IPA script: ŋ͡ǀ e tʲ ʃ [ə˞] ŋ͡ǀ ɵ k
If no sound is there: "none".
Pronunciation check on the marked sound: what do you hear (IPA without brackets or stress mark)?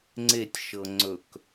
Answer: ɤ